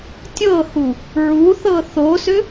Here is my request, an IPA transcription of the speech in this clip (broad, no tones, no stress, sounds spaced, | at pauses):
tʲ ɤ h u | ɹ u θ ɤ θ o s ʏ